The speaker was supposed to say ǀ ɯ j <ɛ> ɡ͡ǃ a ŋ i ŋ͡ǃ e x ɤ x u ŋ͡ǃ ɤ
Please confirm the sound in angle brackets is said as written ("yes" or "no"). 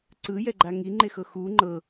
yes